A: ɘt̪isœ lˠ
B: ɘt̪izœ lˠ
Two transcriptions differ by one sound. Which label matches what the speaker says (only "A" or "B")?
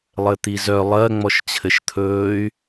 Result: B